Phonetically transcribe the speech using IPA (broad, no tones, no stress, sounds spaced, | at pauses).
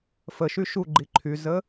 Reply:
f ə ʃ y ʃ u ɡ͡ǃ i ǃʰ y z ə